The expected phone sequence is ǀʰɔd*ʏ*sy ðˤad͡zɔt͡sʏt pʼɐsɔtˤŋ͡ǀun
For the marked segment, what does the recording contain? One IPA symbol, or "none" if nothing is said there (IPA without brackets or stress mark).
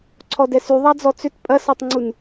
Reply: ɛ